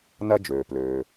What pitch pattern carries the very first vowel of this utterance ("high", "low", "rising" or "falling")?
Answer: high